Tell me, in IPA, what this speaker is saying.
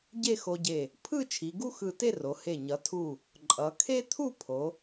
ɟ e˥˧ x o˧ ɟ e˧˩ | pʰ ɯ˥˧ t͡ʃʰ i˩˧ ɡ u˥ x ɯ˧˩ t e˥˧ r o˩˧ h e˧˩ ɲ ʌ˩˧ tʰ u˧˩ | ǃʼ ʌ˩˧ kʰ e˥ t̪ʰ u˥˧ pʰ o˩˧

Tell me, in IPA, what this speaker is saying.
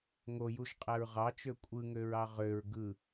ŋ o j u ʒ qʼ æ ɹ ʁ ɑ t͡ʃ ø kʷʼ ɯ ŋ ø ɹ ɑ ʁ ø ɹ ɡ ɯ

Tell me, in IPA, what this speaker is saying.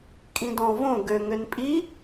kʼ ĩ d ɔ̃ v õ ɡ ø ŋ ø n pʼ i

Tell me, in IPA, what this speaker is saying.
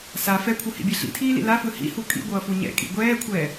s a f ɛ kʷʰ ɯ h ḭ bʲ e ɬ ḭ tʰ iː l ḭ l a f ɯ h ḭ h u kʼ ḭ ɡʷ ʌː f u ɲ ɛ̰ kʼ ḭ ɡʷ ɛː kʷʰ ɛː

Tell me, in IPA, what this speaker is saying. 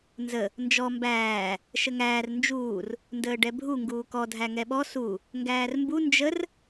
n z ə | n d͡ʒ ɔ m b æː | ʃ ə ŋ æː r n d͡ʒ uː r | n d əː ɖ ɛ bʱ u ŋ ɡ uː k ɔ dʱ æ ŋ ɛ ɓ ɔ s u | ŋ ɡ æː r m b u n d͡ʒ ə r

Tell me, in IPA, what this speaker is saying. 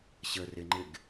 ɕ ə r ɪ ŋ͡ǃ ɪ ɡ

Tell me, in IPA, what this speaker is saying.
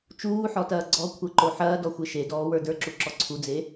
t͡ʃ uː ħ ɔ t ɐː ɡ͡ǀ ɔ kʷʰ ɛ ǃ o ħ ɐː d ɔ xʷ e ʃ e d ɔː w ə˞ d ə˞ ǁ u ǁ ɔ ǀʰ u d͡z e

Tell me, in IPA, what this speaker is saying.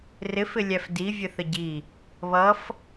r ɪ f ɪ lʲ æ f d i vʲ ə θ ə ɟ i | β ʌ f

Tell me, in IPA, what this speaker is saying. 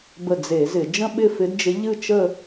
b ə˧˩ d͡z e˧˩˧ z ɪ˧˩˧ d͡ʒ ə̃˥˧ ɓ ɪ˥˧ f ɪ˧˥ d d͡ʒ ɪ˧˥ ʎ ɨ˥˧ t͡ʃ ə˥˧

